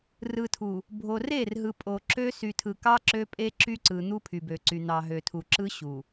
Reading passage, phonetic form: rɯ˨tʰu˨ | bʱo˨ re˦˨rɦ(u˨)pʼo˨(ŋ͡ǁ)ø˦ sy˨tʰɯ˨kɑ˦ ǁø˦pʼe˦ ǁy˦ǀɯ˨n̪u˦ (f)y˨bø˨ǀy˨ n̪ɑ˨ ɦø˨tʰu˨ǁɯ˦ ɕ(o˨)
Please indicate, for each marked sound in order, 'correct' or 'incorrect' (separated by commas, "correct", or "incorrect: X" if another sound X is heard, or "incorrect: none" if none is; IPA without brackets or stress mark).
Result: incorrect: ɯ˨, incorrect: ǁ, incorrect: pʰ, incorrect: u˨